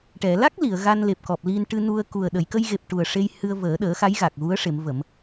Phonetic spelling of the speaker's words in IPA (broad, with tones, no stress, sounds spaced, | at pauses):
ʈ ɛ˨˩˨ l a˦˥ k̚ l i˨˩˨ ə̯ ɣ a˧ n l e˨˩ p̚ k ɔ˨˩ p̚ l i˧ n ʈ ɨ˧ n u˧ ə̯ k u˨˩ ə̯ ɗ ə˨˩˨ j k ə˧ j ɣ e˨˩ p̚ ʈ u˨˩ ə̯ ʂ e˧ j h ɨ˧ ə̯ v əː˨˩˦ ɗ əː˨˩˦ x a˧˥ j ɣ a˨˩ k̚ ɣ u˧˥ ə̯ ʂ e˨˩˦ m v ə˨˩˦ m